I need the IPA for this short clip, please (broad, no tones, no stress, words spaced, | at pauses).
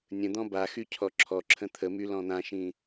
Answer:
nʲə̃d̪ɔ̃ baxy cʰɔǁʰɔǁʰə̃ t̪ʰəmy lɔ̃n̪ãʃĩ